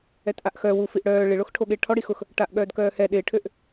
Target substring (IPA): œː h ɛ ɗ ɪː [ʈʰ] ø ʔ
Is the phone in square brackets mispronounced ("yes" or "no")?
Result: no